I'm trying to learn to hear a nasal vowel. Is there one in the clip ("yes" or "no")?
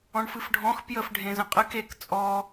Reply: yes